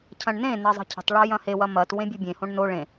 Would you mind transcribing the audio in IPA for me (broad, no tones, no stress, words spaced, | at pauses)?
cʰɐ̃ɳnẽnɐ zˤə̤cʰə̤tˤɭɤ jɐ̃hewɐ mɐt wẽbʲɤbʲẽhõɳ no ɭẽ